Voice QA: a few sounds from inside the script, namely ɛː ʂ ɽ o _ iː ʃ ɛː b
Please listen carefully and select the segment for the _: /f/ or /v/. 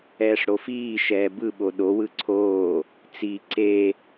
f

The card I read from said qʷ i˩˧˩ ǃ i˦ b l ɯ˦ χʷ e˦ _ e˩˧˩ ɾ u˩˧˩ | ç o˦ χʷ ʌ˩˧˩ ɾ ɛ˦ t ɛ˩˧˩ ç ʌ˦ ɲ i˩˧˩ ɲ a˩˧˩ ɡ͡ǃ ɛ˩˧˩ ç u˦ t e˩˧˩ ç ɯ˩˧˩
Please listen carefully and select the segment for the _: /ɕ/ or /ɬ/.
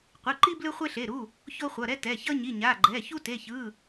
ɬ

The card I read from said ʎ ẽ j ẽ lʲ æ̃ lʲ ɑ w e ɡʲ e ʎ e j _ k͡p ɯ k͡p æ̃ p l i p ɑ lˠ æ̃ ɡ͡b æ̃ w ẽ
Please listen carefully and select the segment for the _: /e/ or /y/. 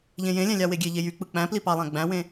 y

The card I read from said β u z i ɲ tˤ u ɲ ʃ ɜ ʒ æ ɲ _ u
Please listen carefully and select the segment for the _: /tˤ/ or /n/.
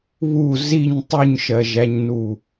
n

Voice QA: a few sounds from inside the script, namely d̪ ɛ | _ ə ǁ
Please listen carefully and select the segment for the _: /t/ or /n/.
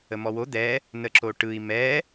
n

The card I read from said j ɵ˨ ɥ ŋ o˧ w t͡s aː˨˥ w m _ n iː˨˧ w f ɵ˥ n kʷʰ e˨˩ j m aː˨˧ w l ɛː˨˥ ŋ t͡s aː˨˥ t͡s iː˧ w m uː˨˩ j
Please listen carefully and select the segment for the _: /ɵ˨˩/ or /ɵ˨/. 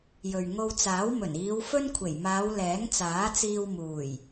ɵ˨˩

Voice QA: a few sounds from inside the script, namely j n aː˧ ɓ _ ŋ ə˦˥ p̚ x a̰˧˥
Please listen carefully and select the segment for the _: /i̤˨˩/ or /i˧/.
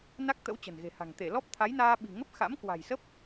i̤˨˩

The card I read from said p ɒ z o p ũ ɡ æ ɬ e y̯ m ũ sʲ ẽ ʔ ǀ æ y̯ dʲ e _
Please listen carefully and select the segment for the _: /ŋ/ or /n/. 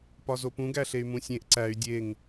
ŋ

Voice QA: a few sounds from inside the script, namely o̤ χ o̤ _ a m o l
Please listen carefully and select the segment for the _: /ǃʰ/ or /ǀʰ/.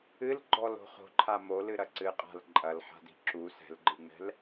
ǃʰ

